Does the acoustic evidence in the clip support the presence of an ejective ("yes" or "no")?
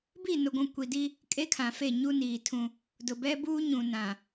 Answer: yes